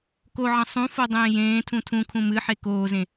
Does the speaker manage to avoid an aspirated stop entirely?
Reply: no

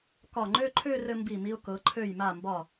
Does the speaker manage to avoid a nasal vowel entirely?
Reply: yes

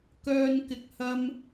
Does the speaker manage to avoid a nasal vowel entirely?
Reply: yes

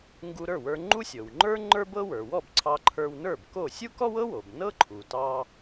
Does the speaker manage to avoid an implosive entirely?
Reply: yes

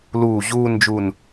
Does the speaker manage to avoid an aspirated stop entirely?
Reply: yes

